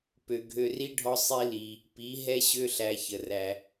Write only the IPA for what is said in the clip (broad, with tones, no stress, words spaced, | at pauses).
pø˨ɡʱø˧ri˦ɖʱɔ˦ sˤi˦li˧ | pi˨˦ ɦɛ˦ɕø˦ɬæ˧ çə˨ræ˧